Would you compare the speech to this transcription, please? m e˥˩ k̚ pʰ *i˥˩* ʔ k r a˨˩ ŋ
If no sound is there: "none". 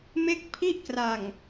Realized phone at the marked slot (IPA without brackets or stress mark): i˥˩